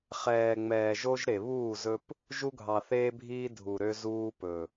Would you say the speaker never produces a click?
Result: yes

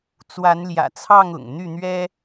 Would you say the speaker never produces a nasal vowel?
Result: yes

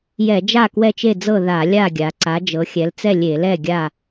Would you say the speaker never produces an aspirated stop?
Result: yes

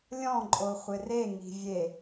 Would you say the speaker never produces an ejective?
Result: no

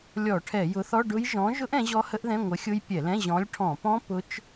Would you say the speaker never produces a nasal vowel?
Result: no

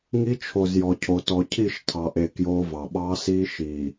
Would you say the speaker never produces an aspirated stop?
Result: no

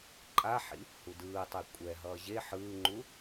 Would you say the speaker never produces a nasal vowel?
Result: yes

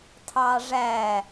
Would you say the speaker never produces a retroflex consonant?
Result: no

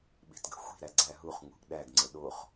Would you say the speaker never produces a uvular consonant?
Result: no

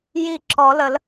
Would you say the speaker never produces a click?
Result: no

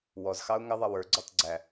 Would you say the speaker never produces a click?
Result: no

